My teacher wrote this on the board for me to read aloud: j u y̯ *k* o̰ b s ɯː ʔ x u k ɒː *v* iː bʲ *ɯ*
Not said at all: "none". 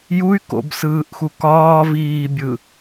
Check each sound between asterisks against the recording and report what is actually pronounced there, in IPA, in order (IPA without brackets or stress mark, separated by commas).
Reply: k, v, ɯ